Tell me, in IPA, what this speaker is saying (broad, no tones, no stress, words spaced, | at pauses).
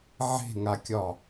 ʕe̤ŋakʲɒ